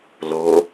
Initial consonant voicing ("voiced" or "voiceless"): voiced